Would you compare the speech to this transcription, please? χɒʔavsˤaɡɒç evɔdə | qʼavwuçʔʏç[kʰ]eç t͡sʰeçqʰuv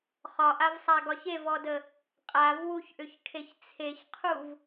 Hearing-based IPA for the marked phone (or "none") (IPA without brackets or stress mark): kʰ